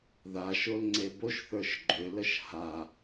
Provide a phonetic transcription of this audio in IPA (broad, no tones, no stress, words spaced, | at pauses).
ðaʃol ŋ͡ǀeboʃθə˞ʃ ɡ͡ǃʏləʃ ha